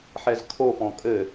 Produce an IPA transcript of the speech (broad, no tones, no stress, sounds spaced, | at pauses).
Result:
ħ ɛ z kʰ o p ɔ̃ kʼ ɘ